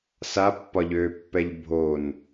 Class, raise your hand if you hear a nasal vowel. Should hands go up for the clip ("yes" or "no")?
no